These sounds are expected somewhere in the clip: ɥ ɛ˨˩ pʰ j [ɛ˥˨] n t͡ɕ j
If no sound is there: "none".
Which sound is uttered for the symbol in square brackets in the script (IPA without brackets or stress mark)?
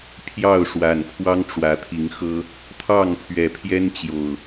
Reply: ɛ˦